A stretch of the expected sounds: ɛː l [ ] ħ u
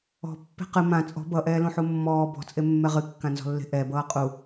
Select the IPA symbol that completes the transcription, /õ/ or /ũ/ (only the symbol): ũ